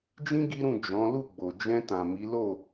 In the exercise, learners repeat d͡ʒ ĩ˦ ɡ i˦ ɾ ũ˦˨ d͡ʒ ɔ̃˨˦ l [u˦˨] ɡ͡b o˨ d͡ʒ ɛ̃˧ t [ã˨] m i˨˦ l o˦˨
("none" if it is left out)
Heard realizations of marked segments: u˦˨, ã˨

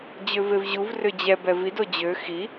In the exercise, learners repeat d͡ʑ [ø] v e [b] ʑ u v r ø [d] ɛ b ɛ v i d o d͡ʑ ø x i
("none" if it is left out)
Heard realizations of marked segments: ø, v, d͡ʑ

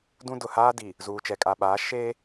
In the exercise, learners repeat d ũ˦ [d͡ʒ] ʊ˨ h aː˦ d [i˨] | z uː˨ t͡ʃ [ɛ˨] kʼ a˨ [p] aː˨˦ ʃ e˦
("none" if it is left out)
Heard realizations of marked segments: d, i˨, ɛ˨, ɓ

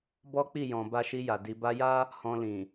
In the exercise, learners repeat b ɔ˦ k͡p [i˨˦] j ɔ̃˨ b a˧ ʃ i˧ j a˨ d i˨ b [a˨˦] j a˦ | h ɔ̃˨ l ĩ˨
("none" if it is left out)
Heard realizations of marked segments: i˦˨, a˧

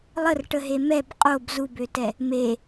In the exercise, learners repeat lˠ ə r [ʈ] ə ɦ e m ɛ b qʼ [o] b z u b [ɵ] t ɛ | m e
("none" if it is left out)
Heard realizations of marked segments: ʈ, o, ø

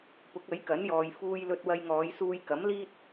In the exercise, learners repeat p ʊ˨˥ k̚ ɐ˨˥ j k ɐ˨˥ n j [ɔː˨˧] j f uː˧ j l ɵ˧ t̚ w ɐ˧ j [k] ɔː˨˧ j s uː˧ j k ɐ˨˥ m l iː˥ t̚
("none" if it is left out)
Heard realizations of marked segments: ɔː˨, ŋ

